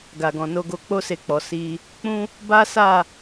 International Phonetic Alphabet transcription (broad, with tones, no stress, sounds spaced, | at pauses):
ɡ a˨ ɡ ɔ̃˨ n o˧ ɡ o˧ k͡p o˦ s e˧ k͡p ɔ˨ s i˧ | k͡p ũ˦ | b a˦ s a˦˨